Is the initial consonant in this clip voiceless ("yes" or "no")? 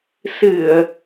yes